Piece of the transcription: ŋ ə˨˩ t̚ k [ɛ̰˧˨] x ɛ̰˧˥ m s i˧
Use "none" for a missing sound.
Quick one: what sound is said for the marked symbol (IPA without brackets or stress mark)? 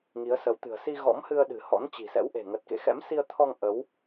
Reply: ḛ˧˨